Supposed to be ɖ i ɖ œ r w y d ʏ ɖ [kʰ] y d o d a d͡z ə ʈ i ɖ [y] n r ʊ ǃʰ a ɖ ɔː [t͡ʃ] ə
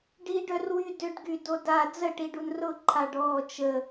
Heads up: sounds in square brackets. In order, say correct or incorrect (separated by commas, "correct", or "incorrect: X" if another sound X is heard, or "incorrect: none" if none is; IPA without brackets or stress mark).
incorrect: ɡ, incorrect: u, correct